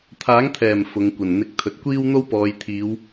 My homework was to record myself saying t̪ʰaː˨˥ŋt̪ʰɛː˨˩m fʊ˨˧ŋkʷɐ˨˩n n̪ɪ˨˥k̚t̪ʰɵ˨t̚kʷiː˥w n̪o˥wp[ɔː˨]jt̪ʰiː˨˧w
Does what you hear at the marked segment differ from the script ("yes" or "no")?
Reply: yes